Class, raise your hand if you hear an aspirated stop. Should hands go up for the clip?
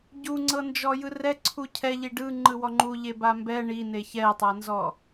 yes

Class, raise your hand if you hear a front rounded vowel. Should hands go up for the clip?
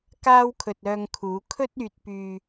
yes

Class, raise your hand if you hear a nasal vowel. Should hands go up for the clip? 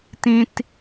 yes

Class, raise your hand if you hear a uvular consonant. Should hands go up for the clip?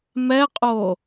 yes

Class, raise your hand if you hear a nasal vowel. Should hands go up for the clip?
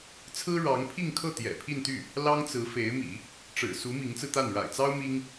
no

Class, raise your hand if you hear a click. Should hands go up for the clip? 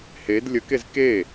no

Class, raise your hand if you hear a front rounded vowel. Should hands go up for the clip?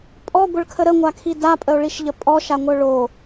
yes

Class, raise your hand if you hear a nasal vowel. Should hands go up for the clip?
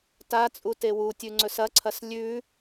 no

